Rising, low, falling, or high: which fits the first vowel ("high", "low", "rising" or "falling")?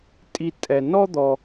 high